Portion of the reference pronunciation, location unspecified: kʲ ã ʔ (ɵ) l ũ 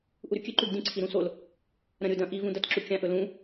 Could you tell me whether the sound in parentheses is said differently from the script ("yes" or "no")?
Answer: no